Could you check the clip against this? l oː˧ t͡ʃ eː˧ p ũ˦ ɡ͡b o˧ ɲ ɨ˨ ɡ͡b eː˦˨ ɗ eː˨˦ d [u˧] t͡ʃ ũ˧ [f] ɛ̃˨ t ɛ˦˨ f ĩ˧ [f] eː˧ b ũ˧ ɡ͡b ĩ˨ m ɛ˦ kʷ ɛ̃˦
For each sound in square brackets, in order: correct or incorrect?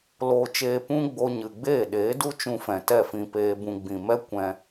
incorrect: u˦, correct, incorrect: p

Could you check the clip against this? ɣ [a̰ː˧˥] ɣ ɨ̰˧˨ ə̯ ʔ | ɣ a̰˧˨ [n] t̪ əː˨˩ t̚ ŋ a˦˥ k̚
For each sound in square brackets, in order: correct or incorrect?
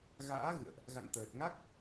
correct, correct

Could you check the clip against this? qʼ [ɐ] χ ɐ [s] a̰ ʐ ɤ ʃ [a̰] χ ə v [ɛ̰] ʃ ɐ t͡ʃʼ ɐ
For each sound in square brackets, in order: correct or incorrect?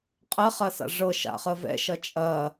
correct, correct, correct, correct

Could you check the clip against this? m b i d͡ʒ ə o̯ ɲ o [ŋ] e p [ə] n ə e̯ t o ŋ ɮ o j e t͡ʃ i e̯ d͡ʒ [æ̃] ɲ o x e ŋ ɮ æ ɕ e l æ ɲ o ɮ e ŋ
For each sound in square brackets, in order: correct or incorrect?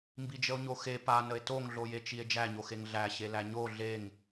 incorrect: x, incorrect: a, incorrect: æ

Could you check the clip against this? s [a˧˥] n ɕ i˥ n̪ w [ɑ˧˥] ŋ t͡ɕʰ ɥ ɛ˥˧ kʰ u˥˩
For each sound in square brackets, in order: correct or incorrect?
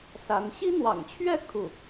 correct, incorrect: ɑ̰˨˩

